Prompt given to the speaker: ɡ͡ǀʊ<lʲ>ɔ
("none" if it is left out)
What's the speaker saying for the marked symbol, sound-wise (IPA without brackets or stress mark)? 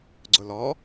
l